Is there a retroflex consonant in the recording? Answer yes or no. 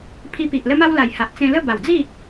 no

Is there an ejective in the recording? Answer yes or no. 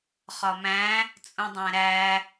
yes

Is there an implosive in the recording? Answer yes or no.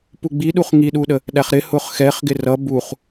yes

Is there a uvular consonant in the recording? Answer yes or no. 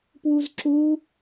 no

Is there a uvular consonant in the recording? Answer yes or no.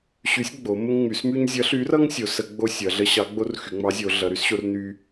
no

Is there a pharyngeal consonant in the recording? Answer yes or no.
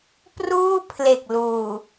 no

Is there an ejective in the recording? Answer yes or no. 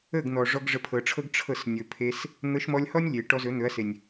no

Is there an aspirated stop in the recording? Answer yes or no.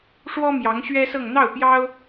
no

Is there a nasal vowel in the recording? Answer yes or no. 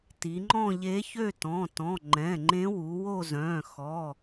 yes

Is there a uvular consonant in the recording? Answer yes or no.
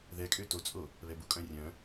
no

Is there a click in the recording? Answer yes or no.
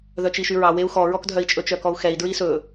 no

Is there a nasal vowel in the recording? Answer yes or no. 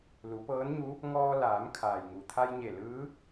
no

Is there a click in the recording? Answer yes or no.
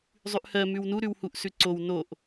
yes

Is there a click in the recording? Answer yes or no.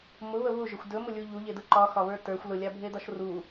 yes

